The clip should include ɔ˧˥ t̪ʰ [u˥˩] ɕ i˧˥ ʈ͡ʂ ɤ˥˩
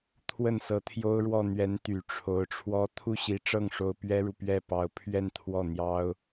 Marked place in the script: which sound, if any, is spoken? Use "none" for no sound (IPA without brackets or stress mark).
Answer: u˥˩